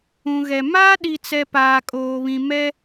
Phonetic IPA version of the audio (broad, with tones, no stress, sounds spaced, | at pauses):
ũ˨ ɣ ɛ˨ m aː˦ ɗ i˨ t͡s ɛ˨ p aː˨ kʼ oː˨ β ĩ˨ m ɛ˦